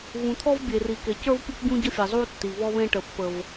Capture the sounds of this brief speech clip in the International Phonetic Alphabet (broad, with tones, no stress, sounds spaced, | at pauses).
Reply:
v ũ˨ t̪ʰ ɔ˦ v bʲ e˨ r i˨ k e˨ c ə˞˦ v pʲ u˦ k ɟ ũ˦ ɟ ə˦ fʲ ɘ˨ zˤ u˦ tː i˨ β ɔ˦ β ẽ˦ ʈ ə˨ pː ə˨ v